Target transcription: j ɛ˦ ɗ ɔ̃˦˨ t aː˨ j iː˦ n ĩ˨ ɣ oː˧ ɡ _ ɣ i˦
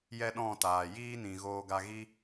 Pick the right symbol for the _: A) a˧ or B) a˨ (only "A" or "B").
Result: A